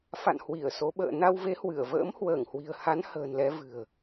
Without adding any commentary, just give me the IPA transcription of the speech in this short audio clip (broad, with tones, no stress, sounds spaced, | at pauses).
f a̰˧˨ n h w i˧˩ ə̯ s o˨˦ ɓ ə̰ː˧˨ n a˧ w v e˨˦ h w ɨ˧˩ ə̯ v ə̰ː˧˥ m h w əː˧˩ ŋ h w i̤˨˩ ə̯ h a˨˦ n h ə̤ː˨˩ n l ɛ˨˦ v ɨ̤˨˩ ə̯